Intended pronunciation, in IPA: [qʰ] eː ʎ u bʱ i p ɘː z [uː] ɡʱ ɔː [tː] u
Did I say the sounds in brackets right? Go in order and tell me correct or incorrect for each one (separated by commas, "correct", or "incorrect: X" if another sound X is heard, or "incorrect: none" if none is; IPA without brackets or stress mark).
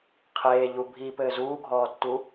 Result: correct, correct, correct